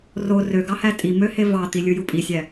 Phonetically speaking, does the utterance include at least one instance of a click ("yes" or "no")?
no